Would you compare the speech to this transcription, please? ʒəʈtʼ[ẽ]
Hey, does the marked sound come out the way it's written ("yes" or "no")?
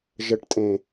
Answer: yes